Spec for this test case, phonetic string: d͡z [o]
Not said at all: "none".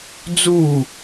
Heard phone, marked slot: u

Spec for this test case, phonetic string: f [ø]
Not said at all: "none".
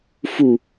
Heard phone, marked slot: u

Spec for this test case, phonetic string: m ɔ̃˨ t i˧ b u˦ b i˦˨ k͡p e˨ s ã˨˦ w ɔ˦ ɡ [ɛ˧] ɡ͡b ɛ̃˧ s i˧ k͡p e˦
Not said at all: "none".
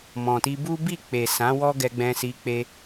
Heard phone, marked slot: ɛ˧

